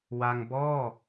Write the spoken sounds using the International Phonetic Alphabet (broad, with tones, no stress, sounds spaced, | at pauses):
w a˧ ŋ b ɔː˥˩